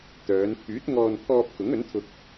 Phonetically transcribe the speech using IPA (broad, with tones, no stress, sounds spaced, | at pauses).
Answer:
t̪ œː˨˧ n pʰ yː˨˥ t̚ ŋ ɔː˧ n pʰ ɔː˧ p̚ k ʊ˨˥ ŋ ɵ˨˥ n t̪ʰ ʊ˧ k̚